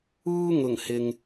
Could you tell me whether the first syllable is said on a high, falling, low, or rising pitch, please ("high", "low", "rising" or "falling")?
high